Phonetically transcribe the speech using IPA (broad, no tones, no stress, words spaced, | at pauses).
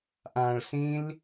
ʔãɭsĩl